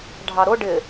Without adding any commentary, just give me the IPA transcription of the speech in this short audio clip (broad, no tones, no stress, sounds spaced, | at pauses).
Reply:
ɖʱ ɑ ɾ ʊ ɖ ɪ